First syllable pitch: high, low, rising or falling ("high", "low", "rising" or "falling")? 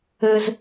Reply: high